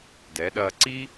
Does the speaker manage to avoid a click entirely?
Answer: no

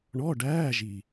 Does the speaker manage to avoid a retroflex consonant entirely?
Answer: no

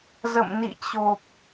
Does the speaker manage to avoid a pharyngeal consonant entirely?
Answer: yes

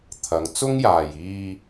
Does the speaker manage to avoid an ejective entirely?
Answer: yes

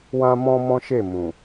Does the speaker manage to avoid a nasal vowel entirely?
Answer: no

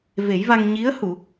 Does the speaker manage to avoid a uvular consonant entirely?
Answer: yes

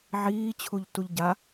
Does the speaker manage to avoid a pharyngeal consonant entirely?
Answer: no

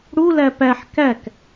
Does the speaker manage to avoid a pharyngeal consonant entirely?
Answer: no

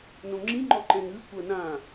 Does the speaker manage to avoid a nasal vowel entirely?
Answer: no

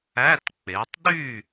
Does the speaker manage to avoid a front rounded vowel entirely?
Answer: no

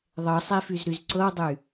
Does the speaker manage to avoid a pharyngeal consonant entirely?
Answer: yes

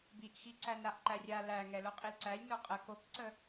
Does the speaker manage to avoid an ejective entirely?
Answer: no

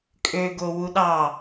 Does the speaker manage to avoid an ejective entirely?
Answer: no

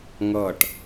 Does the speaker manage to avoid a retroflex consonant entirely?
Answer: no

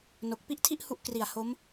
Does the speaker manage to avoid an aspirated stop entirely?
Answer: no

